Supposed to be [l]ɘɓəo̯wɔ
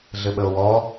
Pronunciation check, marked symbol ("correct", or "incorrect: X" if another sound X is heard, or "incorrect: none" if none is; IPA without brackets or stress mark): incorrect: ɮ